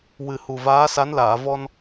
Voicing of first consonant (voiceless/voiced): voiced